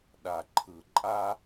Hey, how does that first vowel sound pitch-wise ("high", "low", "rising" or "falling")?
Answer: low